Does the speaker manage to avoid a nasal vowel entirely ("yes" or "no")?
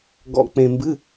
no